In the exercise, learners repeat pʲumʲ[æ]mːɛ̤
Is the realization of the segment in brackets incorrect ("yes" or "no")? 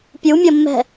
yes